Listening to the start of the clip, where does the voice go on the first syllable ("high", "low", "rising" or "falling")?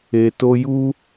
low